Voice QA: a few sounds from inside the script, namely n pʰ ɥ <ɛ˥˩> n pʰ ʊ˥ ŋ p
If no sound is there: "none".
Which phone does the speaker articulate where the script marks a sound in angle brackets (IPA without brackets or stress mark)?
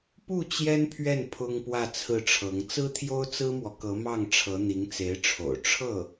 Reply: ɛ˥˩